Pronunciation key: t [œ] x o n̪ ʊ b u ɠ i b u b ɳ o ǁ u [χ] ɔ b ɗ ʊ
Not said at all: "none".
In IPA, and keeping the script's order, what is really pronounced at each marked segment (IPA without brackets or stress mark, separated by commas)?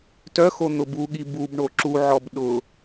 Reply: œ, ʕ